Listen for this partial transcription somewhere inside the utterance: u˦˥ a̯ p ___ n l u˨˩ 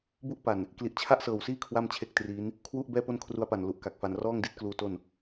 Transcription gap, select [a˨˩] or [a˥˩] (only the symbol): a˨˩